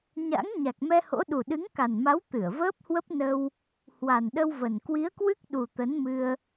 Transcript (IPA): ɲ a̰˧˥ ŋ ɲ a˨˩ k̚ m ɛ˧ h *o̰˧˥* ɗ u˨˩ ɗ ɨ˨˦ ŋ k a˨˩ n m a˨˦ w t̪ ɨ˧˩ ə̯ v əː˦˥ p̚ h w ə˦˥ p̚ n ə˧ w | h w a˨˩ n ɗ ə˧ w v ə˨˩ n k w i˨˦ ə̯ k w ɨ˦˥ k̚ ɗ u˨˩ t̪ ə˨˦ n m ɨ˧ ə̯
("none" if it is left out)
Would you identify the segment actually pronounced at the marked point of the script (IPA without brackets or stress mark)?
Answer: o̰˧˥